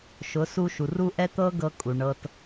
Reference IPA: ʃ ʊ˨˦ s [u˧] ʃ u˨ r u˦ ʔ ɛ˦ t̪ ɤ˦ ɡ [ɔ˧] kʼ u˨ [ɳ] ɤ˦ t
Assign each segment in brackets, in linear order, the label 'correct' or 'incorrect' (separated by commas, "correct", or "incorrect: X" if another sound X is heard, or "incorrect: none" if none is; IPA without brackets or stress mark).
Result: correct, incorrect: ɤ˧, correct